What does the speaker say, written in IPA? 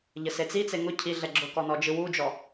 ʎ ə s e t͡s i t͡s e ŋ ʊ cʰ i ɮ ɛ ɡ͡ǁ ʊ k ɔ n ɔ d͡ʒ ɯ w u d͡ʒ ɔ

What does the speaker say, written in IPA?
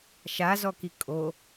ʃ a z ɔ k i kʼ o

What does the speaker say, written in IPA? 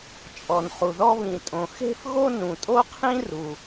t͡ʃʼ ɔ˩ n χ u˩ ð ɔ˥ β ĩ˩ tʼ õ˩ x e̤˥ f ɣ o˥ n ũ˩ tʼ o˥ qʰ ĩ˥ r u˩

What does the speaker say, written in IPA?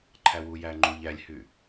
ǃʰ æ w u j æ ŋ͡ǃ u ʎ æ lʲ h y

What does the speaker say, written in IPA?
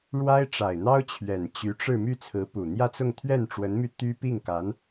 ɻ w a˥ ɪ̯ ʈ͡ʂ a˨˩ ɪ̯ n̪ ɑ˥ ʊ̯ t͡ɕʰ ɥ ɛ˨˩ n t͡ɕ y˧˥ ʈ͡ʂ ɻ̩˥˧ m y˥˩ t͡sʰ ɹ̩˧˥ p u˨˩ n̪ j ä˥˧ t͡s ʊ˥˧ ŋ t̪ʰ ɥ ɛ˥˩ n ʈ͡ʂ w ə˧˥ n m y˧ t̪ y˥ p i˥˩ ŋ k a˧˥ n

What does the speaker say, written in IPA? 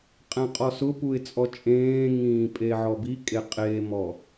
qʼ ɛ̃ qʼ ɔ s ʊ p u ɪ̯ t͡sʼ ɔ t͡ʃʼ ẽː ŋ ĩː pʼ e ʕ ɔ b i kʼ e qʼ e m ɔ

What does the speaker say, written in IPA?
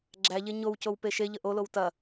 ɡ͡ǁ æ ʎ e ɲ o w c o w p e ʃ e ʎ ə ʔ o l o w t ɐ

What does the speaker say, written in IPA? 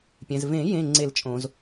pʲ ɛ̃˩ z v ẽ˨˩˦ j ẽ˩˧˩ ŋ͡ǀ e˨˩˦ l t͡ʃʼ õ˩ z

